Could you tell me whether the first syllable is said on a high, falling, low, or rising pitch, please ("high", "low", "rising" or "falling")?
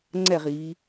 falling